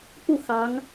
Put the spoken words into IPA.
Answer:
pu˥˩ xɑ˧˥ŋ

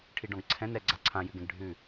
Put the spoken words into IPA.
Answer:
ʈʰiɖɔ̃ɡǀʰɛ̃n ɛ ɡ͡ǀaǀʰãjʉɡɛ̃ɡ ɖʱʉ

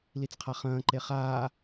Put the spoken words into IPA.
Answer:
lit͡sqʰaχɐ̃ː ǃeχaː

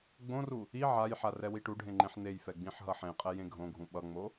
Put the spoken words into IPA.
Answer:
ɡ͡bõru | i ʕajħa rɛwiʈuɖʱẽ ŋ͡ǃẽħnejfɛ ɡ͡bĩħɦʌħẽqʼɛ jẽɡʱõɡʱũ ɓʌŋ͡mo

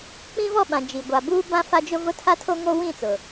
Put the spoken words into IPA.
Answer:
k͡pĩ˦vɔ˦˨ɓã˨ d͡ʒi˨ ɡʷa˨buː˦ bã˦fa˦d͡ʒʊ˦vʊ˦ tʰa˦tʰo˦ŋo˦ wĩ˦˨t͡sʊ˨

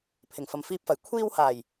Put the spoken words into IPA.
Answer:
pʰɪ˨˩ŋfɐ˨mfiː˧p̚fɐ˨˩j kʷʰiː˧whaː˨˩j

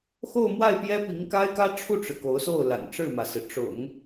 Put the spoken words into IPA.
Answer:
xo˥˧ʊ̯mwa˥˩ɪ̯ pjɛ˥pi˧˥ŋka˥ɪ̯kä˥ ʈ͡ʂʰu˥˩ʈ͡ʂɻ̩˩ ko˧˥ʊ̯so˥˩ʊ̯la̰˨˩n ʈ͡ʂɻ̩˥˩mä˩sɹ̩˩ ʈ͡ʂʊ̰˨˩˦ŋ

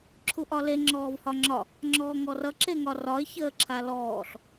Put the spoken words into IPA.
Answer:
ǁʰuʔɒle ŋ͡ǁɔːvhɒŋ͡ǁɒ | ŋ͡ǁɔːŋɔrʌ ǁeŋɒrɒɪ̯ çəːǁʰalɔːɬ

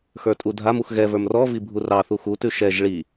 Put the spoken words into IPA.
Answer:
xə˞tʼudʱamux ɣɛvə˞m rɔvi bʱurɑθu xutʉ ʃɛʒ ɭi

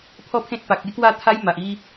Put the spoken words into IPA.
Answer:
pʰɔ˥˧pʰẽ˦t̚pa˨k̚ e˦kwa˥˧t̪ʰa˦j ma˨ʔi˦

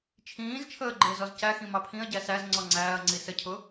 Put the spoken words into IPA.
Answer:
t͡ʃʰĩːzt͡ʃʰəː ɡ͡ǃɪːzɔzcæxĩ mɑpʰĩɐ̯ɟæ sæz ŋ͡ǀɔŋ͡ǀæːɐ̯ŋ͡ǀi səcʰʊ

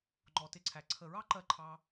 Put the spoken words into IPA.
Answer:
ŋ͡ǃɔ˨tɪ˧ǀʰæ˨ ǀʰə˨ɹɑ˦ǃɜ˧ ǃʰɑ˧

